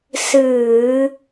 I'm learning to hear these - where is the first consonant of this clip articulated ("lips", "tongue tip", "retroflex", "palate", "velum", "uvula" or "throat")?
tongue tip